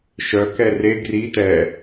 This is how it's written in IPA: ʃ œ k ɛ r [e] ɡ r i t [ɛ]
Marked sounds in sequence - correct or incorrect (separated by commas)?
correct, correct